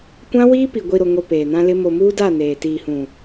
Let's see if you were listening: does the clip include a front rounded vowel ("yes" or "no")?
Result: no